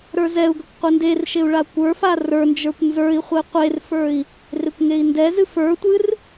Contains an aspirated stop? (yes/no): no